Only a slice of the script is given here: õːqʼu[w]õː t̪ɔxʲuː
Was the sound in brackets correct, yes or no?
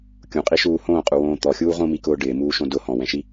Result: yes